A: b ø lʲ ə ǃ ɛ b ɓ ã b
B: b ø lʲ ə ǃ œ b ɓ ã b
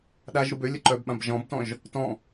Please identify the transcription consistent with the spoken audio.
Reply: B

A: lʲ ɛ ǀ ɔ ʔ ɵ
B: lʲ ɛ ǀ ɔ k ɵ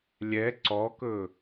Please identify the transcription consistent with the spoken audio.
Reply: B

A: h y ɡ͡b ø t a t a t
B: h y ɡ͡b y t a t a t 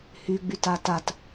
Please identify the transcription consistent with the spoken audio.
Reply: B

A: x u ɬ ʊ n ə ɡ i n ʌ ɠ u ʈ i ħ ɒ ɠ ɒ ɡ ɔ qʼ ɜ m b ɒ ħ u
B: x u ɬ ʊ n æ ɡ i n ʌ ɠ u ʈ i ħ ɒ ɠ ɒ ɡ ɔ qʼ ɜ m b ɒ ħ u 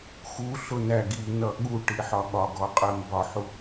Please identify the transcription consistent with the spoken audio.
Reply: B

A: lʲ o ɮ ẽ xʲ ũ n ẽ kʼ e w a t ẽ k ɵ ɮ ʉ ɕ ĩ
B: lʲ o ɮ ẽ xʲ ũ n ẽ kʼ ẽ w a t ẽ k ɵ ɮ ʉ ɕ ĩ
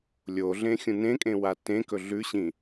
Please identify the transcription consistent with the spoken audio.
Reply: B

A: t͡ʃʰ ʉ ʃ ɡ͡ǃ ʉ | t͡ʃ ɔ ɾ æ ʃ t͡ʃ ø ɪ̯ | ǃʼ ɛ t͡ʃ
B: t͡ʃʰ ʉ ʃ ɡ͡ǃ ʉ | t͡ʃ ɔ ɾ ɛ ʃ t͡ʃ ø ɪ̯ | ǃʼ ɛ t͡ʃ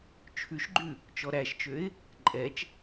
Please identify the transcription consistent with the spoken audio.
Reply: A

